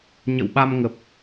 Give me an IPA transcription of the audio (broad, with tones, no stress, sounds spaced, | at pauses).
ɲ ə̰˧˨ w ɓ a˧ m ŋ ə˨˩ p̚